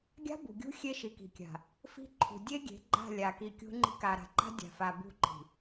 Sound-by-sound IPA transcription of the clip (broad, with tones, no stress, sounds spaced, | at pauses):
ɡʲ a̤˦ b ṳ˨ ɡʲ ṳ˦ xʲ e˦ ʃ i˨ k i̤˨ kʲ a̤˨ | f i̤˦ ǃʰ ṳ˨ dʲ e˦ ɡʲ e̤˨˦ ɡ͡ǃ a̤˦˨ lʲ a˨ k i˨ kʲ ṳ˦ ŋ͡ǃ i̤˦ k a˨ ɾ a̤˨ ǃ a̤˦ dʲ a̤˨ f a˨ b ṳ˦˨ ǃ i̤˨